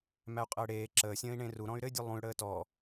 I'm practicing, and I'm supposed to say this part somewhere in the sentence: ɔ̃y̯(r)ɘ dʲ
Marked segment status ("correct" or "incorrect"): incorrect